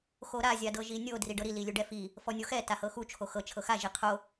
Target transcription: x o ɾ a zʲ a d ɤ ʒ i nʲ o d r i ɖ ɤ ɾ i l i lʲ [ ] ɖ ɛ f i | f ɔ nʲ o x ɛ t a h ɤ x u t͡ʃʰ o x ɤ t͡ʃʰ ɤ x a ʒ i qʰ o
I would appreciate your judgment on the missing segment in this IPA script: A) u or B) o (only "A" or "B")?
A